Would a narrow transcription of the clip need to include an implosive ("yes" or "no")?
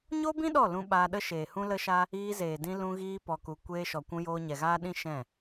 yes